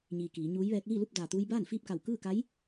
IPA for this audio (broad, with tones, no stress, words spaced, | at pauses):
ɲiː˩ kiː˩˧ɲuː˧˥jʋɛː˧˥k̚ liː˥˨lu˥˨p̚ daː˩t̪uː˧j baː˥˨nfiː˥˨p̚ka˧˩w kɯː˥˨ka˧˥j